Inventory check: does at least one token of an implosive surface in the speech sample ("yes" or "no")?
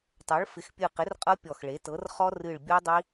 no